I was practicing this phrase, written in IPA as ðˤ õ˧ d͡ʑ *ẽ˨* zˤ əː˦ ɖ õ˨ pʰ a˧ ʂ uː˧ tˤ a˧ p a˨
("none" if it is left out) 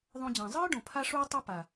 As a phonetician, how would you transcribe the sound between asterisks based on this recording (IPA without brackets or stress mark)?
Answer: ẽ˨